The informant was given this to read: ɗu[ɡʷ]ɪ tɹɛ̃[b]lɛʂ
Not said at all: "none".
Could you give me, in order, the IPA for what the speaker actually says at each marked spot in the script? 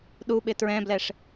ɓ, b

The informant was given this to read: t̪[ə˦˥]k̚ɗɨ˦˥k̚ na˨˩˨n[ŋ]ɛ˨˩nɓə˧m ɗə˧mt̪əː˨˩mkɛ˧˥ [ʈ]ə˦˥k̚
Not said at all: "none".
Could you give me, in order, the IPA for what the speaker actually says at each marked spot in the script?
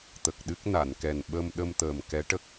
ə˨˩, k, ʈ

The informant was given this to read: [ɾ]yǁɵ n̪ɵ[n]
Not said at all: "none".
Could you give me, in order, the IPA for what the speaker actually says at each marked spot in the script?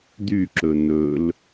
d̪, l

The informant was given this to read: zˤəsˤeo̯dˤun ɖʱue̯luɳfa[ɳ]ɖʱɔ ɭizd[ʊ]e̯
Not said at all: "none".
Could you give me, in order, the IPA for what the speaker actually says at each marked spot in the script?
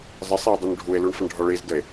ɳ, ə

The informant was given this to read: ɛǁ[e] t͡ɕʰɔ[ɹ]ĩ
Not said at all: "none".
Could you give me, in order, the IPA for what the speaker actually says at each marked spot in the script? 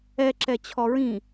ɛ, ɹ

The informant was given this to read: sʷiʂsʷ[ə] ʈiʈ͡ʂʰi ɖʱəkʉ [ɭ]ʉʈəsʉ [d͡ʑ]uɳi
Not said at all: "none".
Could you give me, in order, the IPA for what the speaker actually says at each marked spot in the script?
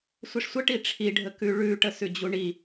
ə, ɭ, d͡ʑ

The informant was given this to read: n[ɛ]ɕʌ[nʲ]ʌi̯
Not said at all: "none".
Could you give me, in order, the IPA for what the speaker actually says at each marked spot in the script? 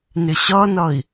ɪ, n

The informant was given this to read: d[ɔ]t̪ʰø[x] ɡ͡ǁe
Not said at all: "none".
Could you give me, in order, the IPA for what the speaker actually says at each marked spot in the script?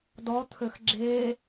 ɔ, x

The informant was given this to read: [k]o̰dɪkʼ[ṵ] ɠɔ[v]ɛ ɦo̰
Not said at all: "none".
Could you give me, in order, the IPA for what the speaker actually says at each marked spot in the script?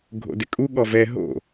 ɡʱ, u, v

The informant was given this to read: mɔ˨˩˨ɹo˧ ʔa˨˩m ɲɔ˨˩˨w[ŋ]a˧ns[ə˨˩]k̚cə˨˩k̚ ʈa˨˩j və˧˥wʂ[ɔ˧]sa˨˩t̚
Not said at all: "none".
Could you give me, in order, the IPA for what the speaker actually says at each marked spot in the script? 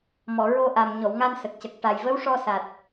ŋ, ə˨˩, ɔ˧

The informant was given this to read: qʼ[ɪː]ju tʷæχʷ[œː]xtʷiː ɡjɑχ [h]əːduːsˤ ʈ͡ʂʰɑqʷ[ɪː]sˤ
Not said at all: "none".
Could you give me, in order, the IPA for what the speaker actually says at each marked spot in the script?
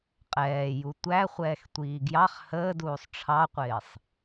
ɛː, ɛː, h, ɪː

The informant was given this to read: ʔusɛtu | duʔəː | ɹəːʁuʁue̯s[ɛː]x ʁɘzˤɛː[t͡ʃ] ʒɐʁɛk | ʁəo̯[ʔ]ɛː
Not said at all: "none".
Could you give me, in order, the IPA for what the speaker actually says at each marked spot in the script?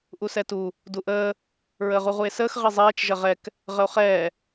əː, t͡ʃ, χ

